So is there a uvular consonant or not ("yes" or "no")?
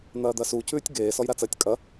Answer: no